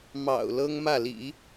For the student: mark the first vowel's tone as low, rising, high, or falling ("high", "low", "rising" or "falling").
low